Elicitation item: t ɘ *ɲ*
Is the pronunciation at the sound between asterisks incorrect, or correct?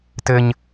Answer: correct